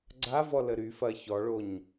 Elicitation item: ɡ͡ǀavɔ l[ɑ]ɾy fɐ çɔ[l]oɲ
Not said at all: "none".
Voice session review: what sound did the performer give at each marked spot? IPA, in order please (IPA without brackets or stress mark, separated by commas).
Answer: ə, ɭ